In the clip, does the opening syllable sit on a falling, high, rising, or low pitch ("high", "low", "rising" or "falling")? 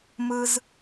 high